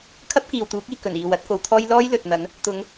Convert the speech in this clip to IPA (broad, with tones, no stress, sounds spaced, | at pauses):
kʰ ɐ˥ p̚ k iː˨ w t̪ uː˨˥ k̚ iː˨ k ɵ˨˩ n iː˨ w ɐ˨˥ t̚ k o˨˧ w t̪ʰ ɔː˥ j l ɔː˥ j l ɵ˨ t̚ n̪ ɐ˨˥ n | t̪ ʊ˨˧ ŋ